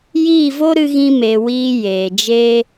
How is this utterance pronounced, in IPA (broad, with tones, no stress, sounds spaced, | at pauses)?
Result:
j iː˦˨ v o˦ ɾ ɨ˦ ɣ ĩ˦ m e˧ w iː˦ j eː˨ d͡ʒ eː˦